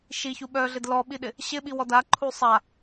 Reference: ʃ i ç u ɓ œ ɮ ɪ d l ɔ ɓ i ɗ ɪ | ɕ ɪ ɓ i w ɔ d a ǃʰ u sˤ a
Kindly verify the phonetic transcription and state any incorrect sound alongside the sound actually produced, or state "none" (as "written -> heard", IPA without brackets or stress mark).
none